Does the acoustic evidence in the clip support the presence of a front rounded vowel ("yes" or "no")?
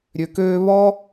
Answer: yes